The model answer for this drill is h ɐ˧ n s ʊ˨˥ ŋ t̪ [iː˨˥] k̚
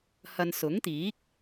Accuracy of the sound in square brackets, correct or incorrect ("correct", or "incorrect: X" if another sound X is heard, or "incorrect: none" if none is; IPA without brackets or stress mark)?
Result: correct